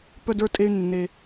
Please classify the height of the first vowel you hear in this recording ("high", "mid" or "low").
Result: mid